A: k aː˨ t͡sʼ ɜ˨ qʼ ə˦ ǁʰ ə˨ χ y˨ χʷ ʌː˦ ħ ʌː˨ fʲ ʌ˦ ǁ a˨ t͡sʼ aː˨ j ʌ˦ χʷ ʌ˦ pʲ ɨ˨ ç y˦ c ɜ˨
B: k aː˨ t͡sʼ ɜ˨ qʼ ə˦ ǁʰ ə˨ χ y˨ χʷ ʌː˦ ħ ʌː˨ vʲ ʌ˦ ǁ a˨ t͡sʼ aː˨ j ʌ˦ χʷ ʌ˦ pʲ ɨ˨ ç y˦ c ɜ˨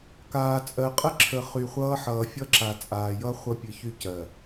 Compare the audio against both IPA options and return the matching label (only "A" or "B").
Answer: A